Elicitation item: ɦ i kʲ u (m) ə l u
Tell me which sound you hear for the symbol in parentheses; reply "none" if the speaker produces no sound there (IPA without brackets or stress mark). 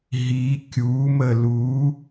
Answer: m